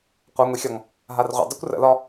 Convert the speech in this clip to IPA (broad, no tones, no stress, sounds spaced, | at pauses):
qʷ ɤ ŋʷ i xʲ ɒ ŋ | ɦ a r ʁʷ ə̰ dˤ ʉ kʷ r ə̰ l ɒ